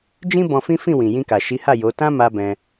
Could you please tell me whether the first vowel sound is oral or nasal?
nasal